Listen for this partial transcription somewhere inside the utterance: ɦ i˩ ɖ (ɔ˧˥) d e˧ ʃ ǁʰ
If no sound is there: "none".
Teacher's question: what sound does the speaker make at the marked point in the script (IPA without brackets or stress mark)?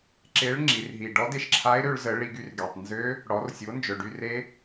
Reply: ɔ˧˥